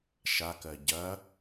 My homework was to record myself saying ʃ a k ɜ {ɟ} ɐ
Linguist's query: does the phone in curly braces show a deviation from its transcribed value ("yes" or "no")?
no